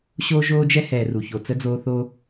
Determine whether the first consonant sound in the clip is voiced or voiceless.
voiceless